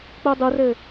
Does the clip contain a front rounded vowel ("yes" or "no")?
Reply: no